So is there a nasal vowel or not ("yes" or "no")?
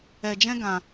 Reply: yes